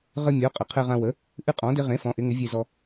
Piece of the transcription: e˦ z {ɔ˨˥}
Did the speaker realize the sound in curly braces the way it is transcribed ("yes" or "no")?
no